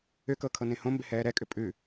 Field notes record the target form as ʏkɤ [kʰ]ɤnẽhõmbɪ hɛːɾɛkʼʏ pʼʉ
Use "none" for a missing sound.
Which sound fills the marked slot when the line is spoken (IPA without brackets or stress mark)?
kʰ